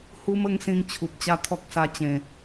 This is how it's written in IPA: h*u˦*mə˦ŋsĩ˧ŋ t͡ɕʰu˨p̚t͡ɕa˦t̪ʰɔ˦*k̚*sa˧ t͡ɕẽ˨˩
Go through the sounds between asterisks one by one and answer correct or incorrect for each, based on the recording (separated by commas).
correct, correct